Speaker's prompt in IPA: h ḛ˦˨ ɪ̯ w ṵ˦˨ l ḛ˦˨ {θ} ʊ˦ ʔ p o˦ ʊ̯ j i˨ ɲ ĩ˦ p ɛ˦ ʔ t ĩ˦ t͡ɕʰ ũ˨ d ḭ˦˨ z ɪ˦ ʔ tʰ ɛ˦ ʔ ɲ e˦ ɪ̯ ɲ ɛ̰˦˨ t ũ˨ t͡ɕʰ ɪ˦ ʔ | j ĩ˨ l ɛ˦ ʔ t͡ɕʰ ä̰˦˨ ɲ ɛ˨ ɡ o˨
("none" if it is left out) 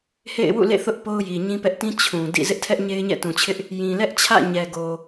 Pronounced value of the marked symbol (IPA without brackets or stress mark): θ